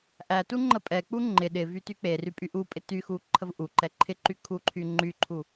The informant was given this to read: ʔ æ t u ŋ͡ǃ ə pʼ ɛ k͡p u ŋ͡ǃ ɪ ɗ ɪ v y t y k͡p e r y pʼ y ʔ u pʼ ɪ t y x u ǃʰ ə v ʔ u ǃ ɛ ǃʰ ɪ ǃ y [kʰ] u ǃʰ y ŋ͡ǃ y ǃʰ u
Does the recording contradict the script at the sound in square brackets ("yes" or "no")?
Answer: no